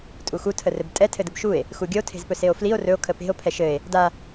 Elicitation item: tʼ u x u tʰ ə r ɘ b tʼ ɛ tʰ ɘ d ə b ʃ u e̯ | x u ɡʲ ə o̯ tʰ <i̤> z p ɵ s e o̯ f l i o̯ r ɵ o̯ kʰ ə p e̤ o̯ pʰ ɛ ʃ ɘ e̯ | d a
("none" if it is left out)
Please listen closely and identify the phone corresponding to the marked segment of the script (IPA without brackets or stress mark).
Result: e̤